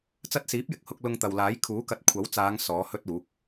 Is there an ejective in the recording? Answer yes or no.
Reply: no